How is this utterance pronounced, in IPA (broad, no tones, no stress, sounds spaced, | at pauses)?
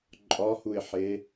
ǃʼ ɒ h u ɪ̯ ħ e